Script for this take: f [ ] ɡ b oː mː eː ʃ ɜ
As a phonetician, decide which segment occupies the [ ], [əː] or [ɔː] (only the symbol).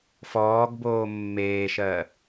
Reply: ɔː